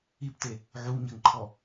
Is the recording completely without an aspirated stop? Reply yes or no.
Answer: no